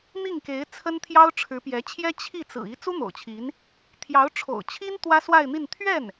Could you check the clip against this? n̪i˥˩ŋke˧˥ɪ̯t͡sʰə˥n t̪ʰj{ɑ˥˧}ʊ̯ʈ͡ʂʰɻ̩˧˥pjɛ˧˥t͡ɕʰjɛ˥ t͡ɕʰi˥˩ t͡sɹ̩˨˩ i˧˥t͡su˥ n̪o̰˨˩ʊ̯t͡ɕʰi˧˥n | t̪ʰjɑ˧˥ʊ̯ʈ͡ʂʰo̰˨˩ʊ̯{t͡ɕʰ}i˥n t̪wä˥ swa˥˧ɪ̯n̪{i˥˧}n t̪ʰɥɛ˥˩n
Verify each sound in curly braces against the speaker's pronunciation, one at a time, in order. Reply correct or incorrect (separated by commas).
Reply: incorrect, correct, correct